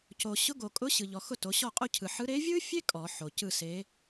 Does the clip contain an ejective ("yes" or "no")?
yes